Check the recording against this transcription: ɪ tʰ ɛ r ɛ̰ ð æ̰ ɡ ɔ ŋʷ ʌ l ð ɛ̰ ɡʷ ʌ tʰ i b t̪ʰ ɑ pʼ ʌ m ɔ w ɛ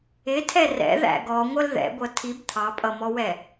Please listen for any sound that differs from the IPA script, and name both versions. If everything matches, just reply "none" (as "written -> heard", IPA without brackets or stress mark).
none